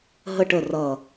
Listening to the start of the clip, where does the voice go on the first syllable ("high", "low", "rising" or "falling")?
falling